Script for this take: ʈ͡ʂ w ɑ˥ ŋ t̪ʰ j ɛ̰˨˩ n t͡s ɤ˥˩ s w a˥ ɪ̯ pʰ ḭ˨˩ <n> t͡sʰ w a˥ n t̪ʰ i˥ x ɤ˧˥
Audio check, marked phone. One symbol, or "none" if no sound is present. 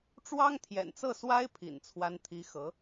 n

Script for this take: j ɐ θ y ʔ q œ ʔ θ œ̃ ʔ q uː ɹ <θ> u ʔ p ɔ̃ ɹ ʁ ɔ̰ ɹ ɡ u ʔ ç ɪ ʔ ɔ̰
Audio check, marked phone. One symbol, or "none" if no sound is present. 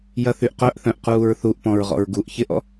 θ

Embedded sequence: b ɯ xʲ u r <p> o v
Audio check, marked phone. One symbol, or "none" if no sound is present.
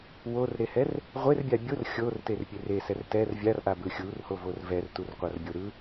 h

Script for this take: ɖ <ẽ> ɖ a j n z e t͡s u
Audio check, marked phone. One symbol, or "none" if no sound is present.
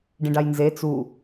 ĩ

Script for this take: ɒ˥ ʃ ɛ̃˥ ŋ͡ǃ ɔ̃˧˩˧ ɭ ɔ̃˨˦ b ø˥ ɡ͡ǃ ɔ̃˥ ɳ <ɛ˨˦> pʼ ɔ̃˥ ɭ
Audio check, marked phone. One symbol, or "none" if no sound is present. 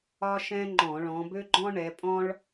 ɛ˨˦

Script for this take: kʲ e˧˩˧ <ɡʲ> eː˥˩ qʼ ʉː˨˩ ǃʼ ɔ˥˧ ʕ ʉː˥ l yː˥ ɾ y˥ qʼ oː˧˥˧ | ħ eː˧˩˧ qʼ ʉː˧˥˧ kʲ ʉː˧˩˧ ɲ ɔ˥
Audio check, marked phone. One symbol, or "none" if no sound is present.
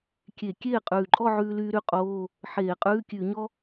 kʲ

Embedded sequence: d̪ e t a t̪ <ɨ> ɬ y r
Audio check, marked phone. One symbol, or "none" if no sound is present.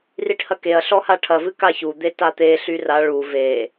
e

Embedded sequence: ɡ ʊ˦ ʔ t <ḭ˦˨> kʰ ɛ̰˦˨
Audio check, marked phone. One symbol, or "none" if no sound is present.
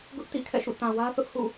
ḭ˦˨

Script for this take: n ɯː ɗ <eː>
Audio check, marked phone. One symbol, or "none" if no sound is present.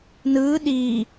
iː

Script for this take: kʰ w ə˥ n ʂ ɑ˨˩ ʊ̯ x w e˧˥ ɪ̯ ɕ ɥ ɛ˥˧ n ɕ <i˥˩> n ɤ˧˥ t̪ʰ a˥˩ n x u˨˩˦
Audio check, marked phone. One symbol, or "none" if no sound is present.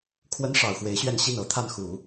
i˥˩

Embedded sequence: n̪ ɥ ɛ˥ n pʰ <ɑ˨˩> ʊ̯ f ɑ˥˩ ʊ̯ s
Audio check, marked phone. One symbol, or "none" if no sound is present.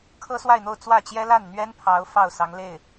ɑ˧˥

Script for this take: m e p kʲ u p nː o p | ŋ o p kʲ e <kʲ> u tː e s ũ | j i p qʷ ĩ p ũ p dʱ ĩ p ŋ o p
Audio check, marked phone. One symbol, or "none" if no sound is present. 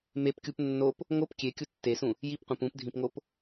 kʲ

